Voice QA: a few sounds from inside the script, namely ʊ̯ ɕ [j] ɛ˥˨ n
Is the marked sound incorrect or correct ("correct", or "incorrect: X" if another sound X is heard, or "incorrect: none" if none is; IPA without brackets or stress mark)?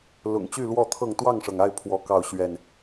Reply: incorrect: ɥ